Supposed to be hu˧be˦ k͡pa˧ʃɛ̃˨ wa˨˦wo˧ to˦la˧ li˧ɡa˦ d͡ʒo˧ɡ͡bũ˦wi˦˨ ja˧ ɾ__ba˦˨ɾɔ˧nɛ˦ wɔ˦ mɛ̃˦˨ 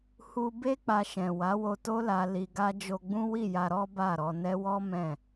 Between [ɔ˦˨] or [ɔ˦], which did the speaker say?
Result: ɔ˦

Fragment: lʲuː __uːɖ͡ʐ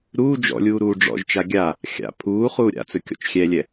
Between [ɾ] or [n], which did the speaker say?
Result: ɾ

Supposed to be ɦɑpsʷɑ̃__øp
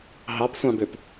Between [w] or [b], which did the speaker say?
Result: b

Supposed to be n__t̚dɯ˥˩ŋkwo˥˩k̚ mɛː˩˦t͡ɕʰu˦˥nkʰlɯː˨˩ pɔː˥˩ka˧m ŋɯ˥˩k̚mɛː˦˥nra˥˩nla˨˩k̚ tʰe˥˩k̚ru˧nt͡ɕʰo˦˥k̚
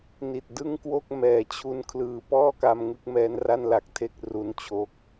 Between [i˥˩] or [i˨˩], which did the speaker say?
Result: i˨˩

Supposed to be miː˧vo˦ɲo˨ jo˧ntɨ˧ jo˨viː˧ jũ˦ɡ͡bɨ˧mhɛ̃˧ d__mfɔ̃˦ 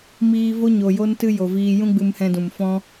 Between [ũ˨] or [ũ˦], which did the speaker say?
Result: ũ˨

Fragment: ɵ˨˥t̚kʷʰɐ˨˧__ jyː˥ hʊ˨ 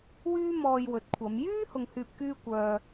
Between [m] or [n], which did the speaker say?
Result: m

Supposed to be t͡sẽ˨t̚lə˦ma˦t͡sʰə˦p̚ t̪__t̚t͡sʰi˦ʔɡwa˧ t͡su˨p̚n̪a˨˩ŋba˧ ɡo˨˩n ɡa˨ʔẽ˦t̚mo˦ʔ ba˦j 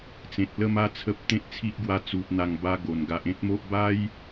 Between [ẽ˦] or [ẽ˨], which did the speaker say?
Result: ẽ˦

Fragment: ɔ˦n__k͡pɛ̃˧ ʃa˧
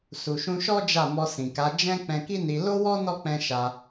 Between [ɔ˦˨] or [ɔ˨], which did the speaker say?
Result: ɔ˦˨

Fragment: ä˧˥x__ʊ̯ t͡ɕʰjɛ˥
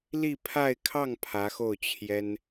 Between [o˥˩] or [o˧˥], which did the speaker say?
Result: o˥˩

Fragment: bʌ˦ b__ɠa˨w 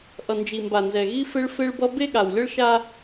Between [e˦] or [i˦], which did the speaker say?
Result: e˦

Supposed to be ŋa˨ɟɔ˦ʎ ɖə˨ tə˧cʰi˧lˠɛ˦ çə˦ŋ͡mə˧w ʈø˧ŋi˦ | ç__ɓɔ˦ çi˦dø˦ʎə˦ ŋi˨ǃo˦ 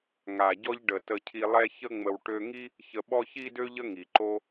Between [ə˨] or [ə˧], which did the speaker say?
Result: ə˧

